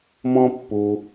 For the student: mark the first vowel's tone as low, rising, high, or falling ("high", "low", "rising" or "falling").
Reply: high